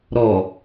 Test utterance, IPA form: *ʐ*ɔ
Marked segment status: incorrect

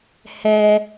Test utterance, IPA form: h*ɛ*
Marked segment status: correct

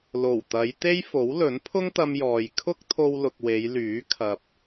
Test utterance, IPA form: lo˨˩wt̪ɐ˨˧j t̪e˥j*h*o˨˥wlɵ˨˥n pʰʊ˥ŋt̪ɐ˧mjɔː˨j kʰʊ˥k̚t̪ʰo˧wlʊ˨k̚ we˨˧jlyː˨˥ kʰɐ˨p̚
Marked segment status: incorrect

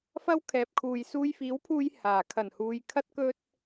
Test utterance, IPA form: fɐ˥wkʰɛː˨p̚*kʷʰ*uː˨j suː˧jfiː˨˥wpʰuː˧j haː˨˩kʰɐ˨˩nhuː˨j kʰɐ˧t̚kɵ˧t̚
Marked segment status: incorrect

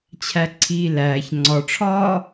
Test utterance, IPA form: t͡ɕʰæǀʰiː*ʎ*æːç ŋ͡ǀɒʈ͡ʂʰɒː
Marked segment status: incorrect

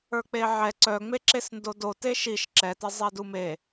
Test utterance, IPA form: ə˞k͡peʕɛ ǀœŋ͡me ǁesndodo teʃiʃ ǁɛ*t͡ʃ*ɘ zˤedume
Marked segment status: incorrect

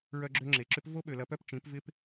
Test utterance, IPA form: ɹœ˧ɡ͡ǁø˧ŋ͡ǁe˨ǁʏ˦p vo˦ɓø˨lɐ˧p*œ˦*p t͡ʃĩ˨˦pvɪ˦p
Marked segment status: correct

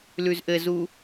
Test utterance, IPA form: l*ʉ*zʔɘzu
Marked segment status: correct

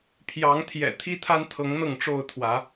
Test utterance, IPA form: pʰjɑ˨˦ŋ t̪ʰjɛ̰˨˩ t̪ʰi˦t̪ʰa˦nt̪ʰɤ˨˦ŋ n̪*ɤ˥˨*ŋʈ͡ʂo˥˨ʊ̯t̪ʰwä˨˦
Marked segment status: correct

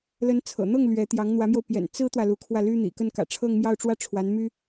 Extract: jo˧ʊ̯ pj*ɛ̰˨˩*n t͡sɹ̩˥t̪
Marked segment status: correct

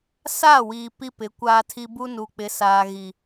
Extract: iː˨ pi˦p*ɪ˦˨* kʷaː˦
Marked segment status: incorrect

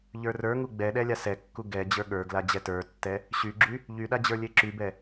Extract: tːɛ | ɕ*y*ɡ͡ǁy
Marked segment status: correct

